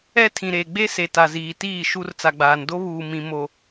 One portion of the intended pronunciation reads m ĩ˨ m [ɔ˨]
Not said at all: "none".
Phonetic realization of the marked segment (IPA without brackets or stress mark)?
o˨